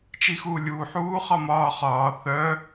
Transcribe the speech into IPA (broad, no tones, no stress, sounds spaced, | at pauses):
t͡ʃ i x uː lʲ uː ħ uː χ ɒ m ɒː χ ɒː θ œ